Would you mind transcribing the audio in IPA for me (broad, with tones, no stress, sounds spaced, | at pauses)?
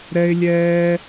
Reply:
ɾ ɛ˧ ɪ̯ lʲ ɛː˧